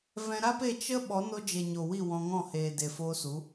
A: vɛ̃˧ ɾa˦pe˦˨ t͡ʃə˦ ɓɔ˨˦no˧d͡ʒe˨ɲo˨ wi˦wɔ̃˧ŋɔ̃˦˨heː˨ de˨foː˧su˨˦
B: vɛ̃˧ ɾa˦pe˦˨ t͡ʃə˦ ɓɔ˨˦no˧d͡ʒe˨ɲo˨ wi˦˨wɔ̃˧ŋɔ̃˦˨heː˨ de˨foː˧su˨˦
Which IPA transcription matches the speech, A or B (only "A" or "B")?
B